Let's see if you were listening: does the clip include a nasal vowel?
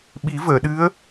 no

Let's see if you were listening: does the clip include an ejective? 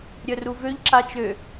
no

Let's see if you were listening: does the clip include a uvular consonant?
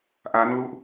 no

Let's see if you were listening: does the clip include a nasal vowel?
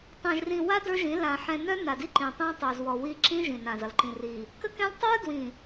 yes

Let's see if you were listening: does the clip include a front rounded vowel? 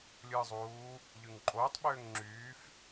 yes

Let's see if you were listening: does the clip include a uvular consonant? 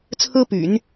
no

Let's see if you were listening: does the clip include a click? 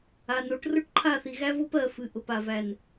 yes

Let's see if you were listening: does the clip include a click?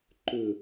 yes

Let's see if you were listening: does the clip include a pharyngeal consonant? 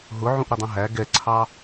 yes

